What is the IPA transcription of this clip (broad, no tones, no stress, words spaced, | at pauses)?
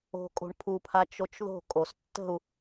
o̤ kʼo̤ɳpʰupʰa t͡ʃot͡ʃðo̤ kʼostːə̤u̯